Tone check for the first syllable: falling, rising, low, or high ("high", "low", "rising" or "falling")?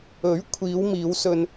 rising